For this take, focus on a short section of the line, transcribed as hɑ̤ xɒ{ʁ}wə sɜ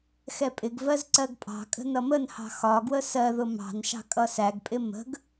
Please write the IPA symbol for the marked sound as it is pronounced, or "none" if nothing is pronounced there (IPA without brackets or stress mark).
ɡ